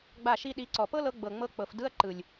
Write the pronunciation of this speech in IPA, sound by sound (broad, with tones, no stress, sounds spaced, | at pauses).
ɡ͡b a˦˨ ʃ i˦ ɗ i˨˦ ǀ ɔ˨ p ɤ˦ l ɤ˧ ɡ͡b ɤ˨ ŋ͡m ɤ˧ k͡p ɤ˨ f d ɯ˧ ɐ̯ ǃ ɯ˨ lʲ